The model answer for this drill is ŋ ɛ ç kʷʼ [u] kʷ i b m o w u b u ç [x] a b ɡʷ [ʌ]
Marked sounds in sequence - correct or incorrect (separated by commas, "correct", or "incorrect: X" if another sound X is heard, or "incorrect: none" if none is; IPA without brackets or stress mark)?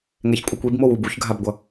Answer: incorrect: ɯ, incorrect: ɡʱ, correct